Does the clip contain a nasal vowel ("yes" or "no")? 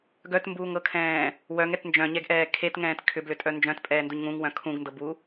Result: yes